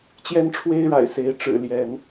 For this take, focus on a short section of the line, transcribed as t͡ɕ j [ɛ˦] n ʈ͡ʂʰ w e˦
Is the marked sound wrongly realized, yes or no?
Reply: no